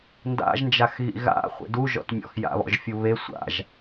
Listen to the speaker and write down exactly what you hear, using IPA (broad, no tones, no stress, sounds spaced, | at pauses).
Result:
n d a̰ ʒ n d͡ʒ a x ɣ ḭ ɣ a̰ χʷ ḛ d u ʒ ɔ̰ t mʲ ɔ̰ x j a̰ β ɔ̰ ʒ fʲ u β e sʷ a̰ ʒ